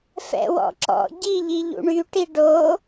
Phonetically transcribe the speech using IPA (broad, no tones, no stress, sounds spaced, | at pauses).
f ɛ̰ w ɔ̰ ǁ ɔ̰ ɟ i ʎ i ʎ ṵ ɳ y ʈ i ɖ o